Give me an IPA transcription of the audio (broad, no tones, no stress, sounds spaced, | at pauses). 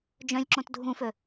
d͡ʒ œ̃ lʲ ǁ õ t dʱ ũ f ø